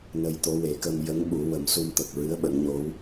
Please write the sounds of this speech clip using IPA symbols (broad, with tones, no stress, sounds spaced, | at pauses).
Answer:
n ə˧ j t̪ o˧˥ w e˨˩˦ k ə˧ m j ə˧˥ ŋ ɓ u˨˩˦ w ə˨˩˦ m s u˧ m t̪ ə˨˩ k̚ ɹ ɨ˧˥ ə̯ ɓ ə˨˩˦ ŋ ɲ o˧˥ w